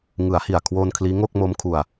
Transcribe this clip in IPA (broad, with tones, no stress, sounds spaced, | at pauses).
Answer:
ŋ ɯ˩˦ a̯ h i˨˩ a̯ kʰ w oː˧ n kʰ l iː˦˥ ŋ o˥˩ k̚ m o˦˥ m kʰ u˧ a̯